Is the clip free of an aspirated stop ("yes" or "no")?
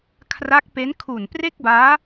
no